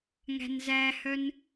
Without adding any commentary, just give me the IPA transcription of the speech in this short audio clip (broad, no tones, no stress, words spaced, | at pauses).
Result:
ŋæ̤nzæhœn